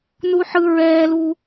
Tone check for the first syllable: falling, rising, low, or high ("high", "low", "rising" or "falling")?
high